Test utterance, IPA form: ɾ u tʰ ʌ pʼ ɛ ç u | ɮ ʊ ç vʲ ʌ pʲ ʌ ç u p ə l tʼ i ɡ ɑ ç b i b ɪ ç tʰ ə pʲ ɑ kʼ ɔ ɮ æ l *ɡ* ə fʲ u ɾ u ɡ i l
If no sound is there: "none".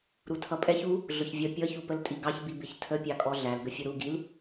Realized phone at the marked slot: ɡ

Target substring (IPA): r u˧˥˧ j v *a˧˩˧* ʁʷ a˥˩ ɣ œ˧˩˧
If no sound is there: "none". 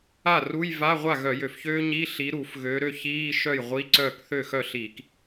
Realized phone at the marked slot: a˧˥˧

